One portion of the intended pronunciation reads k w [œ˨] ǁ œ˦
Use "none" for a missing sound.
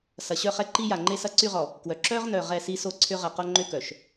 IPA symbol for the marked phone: œ˨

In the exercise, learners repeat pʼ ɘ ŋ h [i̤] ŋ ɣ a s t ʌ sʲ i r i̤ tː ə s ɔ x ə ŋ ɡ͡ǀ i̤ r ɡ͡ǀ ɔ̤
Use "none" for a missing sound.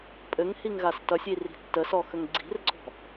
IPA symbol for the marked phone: i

